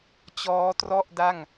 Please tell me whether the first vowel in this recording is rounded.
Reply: yes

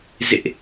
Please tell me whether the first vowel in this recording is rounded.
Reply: no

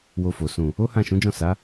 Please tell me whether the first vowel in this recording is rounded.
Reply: yes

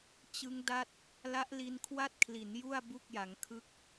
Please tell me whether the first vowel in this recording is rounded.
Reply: no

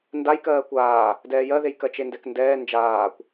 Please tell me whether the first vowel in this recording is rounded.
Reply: no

